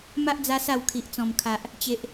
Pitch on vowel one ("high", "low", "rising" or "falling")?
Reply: high